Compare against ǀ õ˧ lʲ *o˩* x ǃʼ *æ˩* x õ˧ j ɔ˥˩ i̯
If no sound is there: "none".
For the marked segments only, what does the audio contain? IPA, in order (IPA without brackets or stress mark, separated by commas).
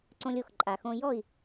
o˩, a˩